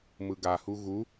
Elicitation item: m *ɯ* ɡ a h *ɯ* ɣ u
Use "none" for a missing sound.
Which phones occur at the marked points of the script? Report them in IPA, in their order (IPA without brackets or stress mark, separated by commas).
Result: ɯ, u